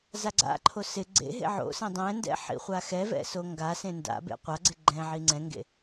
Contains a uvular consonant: yes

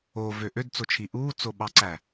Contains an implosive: yes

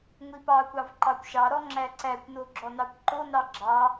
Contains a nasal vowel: no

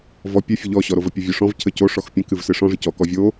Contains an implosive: no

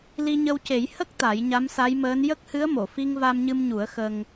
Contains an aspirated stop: no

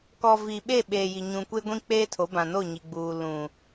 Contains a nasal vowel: yes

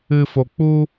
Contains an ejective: no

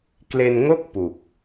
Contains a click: no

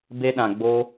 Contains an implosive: yes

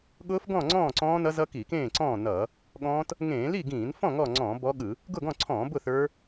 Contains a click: yes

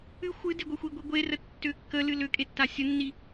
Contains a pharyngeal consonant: no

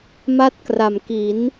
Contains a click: no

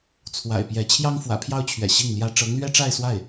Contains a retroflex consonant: yes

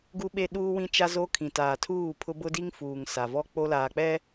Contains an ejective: no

